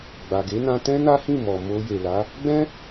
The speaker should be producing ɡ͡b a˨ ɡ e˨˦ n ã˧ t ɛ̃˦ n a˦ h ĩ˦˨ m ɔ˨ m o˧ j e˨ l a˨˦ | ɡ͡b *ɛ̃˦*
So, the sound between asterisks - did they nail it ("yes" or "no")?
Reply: yes